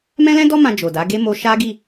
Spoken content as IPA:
m ɛ̃˦ l ɛ̃˦ d ɔ˦ m ã˧ d͡ʒ o˨ d a˨˦ ɡ e˦ m o˧ ʃ a˦ ɡ i˦˨

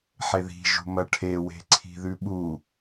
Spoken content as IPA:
ħ e ð i̤ ʒ ṳ m ɐ ʈʰ e w e̤ ǀʰ i̤ ð ʉ ɓ u

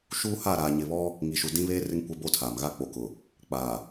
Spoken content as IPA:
ʃ uː˦ h a˦˨ ɾ aː˨ ɲ ɪ˨ β ɔ˦ | ŋ i˨ ʃ u˨ d ĩ˦ β eː˦ r ɪ˦ ŋ kʷ ɛ˦ b oː˦ tʰ aː˨ m ɣ a˦ k͡p o˨ k ʊ˨ | k͡p aː˨

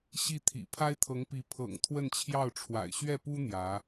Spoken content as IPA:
ɕ i˥˩ t̪ʰ ḭ˨˩ pʰ a˥ ɪ̯ t̪ʰ ɤ˧˥ ŋ p i˧˥ pʰ ɤ̰˨˩ ŋ t̪ʰ w ə˥˧ n t͡ɕʰ j ɑ˥˩ ʊ̯ ʈ͡ʂʰ w a̰˨˩ ɪ̯ ɕ ɥ ɛ˥˩ p u˥ n̪ j ä˧˥

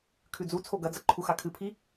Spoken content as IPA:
kʰ ʉ d͡z u t͡sʰ o ɡ ɐ d͡z ɐ ǃʰ u x a kʰ ɨ pʰ i

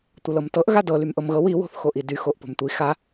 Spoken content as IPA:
tʷ ə l ɤ m t ɤ ʔ ɣ a d ɤ l y m ʔ ɤ m ɣ ɤ w i w o̤ θ x o ʔ i d y x o ʔ p o̤ m tʷ i x a

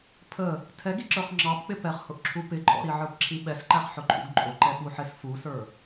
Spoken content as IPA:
pʰ ə | tʰ ɛ ɡ i ǁ ə˞ χ ŋ͡ǁ ɑ p k͡p ɪ p ɛ χ h ʊ ʔ ǁʰ u p ɪ ǃʼ ɔ̰ ɾ i ʕ ə˞ p ǁʰ i ɓ ɛ s ǃ æ χ ħ ʊ ǃʰ ṵ ɡ ǃʼ ʊ ǃ ɛ ɓ u ħ ɪ s f u s ə˞

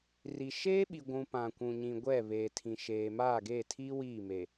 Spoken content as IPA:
r i˨ ʃ eː˦ ɓ i˨ ɡʷ ũ˨ p ã˨ kʷ ũ˨ ɲ ĩ˨ ɡʷ ɛ˦˨ β eː˨ tʰ ĩ˨ ʃ eː˨ m aː˦˨ ɡ eː˦˨ tʰ iː˦ w iː˦˨ m e˨

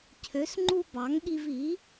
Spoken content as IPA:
cʰ ø˩˥ s ŋ͡ǃ u˧ b ɑ˩˥ ŋ ɠ i˧ v i˩˥

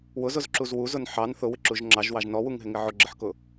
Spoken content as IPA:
w ʊ z ʊ z ǁ u z w u z ʊ n ħ ɑ n θ ʊ w ɪ ǁ u ʒ ŋ͡ǁ ɑ ʒ w ɑ ʒ n ɔ w u ŋ ɦ ɪ ŋ ɪ ʕ ʊ ɡ͡ǁ ɪ ħ k ʊ

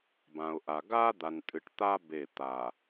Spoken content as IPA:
b ã˨ ʊ̯ ʔ a˨ ɡ a˦ d̪ a˨ n tʼ ɨ˨ ʈ t̪ a˦ b e˦˨ t̪ a˨

